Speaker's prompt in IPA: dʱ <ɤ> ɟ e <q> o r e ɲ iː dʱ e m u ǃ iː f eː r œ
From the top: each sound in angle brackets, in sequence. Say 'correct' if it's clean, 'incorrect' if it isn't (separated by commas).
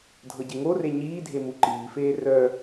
correct, incorrect